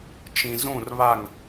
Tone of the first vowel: low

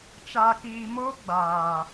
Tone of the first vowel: high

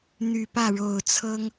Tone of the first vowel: low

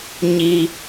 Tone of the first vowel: low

